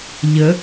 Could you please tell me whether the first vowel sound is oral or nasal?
oral